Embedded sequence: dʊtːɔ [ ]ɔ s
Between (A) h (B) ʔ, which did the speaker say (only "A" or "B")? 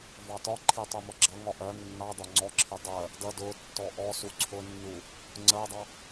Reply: B